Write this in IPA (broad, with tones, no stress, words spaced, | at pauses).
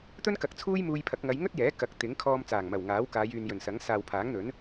t̪ɵ˥nkɐ˨k̚t͡sʰuː˥j muː˧jpʰɐ˨˥k̚ ŋɐ˨˧jŋɵ˥t̚jɛː˨˥ kɐ˨˥k̚ t̪ɪ˨˥ŋkʰɔː˧m t͡saː˨˩ŋmɐ˨˩wŋaː˨˥w kaː˨˧jyː˨njɵ˨˩nsɐ˨˥ŋ saː˨wpʰaː˨˥ŋn̪ɵ˨˥n